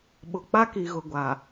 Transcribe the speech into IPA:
ɓ ʊ˨ k͡p a˦ k i˨ ɣ ʊ˨ ɡʷ a˨

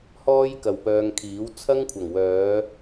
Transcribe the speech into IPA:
h ɔː˥ j k ɐ˨˩ w p œː˨ ŋ kʰ iː˨˥ w t͡sʰ ɐ˥ ŋ kʷʰ ɐ˨˩ ŋ w œː˨˧

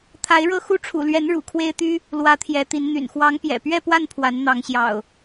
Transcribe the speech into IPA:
t̪ʰ a˨˦ ɪ̯ ɻ ɤ˥˨ x u˥˨ ʈ͡ʂʰ ṵ˨˩ l ɥ ɛ˨˦ n ɻ ṵ˨˩ kʰ w e˦ ɪ̯ t̪ y˦ | l w ä˨˦ t̪ʰ j ɛ˨˦ t̪ i˨˦ n n̪ y̰˨˩ n x w ɑ˨˦ ŋ p j ɛ̰˨˩ p ɥ ɛ˥˨ p w a˥˨ n pʰ w a˨˦ n n̪ ɑ˨˦ ŋ ɕ j ɑ̰˨˩ ʊ̯

